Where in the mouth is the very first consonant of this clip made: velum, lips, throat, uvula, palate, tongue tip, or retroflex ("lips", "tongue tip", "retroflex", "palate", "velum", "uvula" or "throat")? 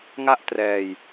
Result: velum